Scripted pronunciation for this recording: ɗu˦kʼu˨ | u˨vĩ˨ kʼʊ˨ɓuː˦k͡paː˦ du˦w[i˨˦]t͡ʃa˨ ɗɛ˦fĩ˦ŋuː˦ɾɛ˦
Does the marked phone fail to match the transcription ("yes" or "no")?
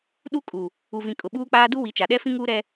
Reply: no